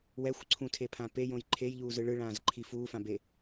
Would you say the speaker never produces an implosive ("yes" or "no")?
yes